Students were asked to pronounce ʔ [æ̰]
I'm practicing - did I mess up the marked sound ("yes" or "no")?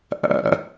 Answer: no